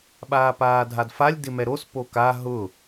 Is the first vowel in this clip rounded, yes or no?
no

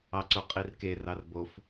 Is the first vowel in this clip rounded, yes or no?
no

